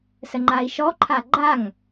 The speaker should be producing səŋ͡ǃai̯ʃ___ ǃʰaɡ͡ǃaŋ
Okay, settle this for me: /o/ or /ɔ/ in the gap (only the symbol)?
ɔ